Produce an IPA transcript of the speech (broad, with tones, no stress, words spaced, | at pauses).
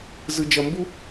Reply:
zɯ˧d͡ʒʌ˧mbu˦